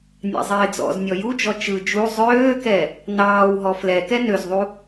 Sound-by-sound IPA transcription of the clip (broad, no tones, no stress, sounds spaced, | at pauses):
nʲ ɑ̰ zˤ ɪː d͡z ɔ̰ z nʲ ɔ j u d͡ʒ ɔ t͡ʃ ɯ d͡ʒ u zˤ øː k ɛ | n ɑː w ɦ ɔ f l ɛ k ɛ n ø z ðˤ u